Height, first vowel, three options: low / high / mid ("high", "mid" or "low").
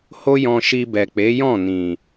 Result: mid